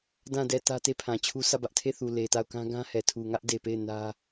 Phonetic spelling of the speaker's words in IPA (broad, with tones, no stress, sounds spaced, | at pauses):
d ã˦˨ d ɛ˦˨ t ä˦ t e˦˨ pʰ ã˨ t͡ɕʰ u˦ sʰ ä˦˨ b ä˦ ʔ tʰ e˦˨ θ u˨ l e˨ t a˦˨ ʊ̯ k ã˦ ɡ ã˦ h ɛ˨ tʰ u˨ ŋ ä˦ ʔ d e˨ p e˦˨ ɪ̯ n ä˦